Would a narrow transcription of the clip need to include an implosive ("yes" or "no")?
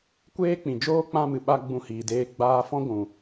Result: yes